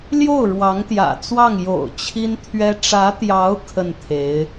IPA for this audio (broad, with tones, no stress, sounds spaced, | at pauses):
l j o˥˩ ʊ̯ ɻ w ɑ˧˥ ŋ t̪ j ä̰˨˩ t͡s w ɑ˥˩ ŋ j o̰˨˩ ʊ̯ t͡ɕʰ i˥ n t̪ʰ ɥ ɛ˥ ʈ͡ʂ ä˧˥ t̪ j ɑ˧˥ ʊ̯ kʰ ə˥˩ n t̪ʰ e˧˥ ɪ̯